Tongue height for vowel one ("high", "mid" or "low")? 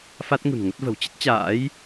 low